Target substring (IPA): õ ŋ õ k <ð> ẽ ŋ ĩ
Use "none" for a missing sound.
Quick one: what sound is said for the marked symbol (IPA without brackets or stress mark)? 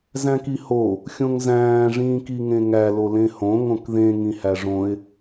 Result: ð